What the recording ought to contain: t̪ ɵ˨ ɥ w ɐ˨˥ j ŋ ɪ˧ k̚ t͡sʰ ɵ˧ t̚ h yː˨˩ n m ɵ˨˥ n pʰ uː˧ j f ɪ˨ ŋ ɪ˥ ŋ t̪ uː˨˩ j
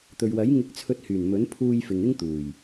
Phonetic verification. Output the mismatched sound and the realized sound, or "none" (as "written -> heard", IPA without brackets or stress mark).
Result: none